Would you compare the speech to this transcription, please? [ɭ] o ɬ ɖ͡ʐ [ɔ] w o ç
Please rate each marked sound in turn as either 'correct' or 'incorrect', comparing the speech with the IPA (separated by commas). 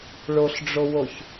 correct, incorrect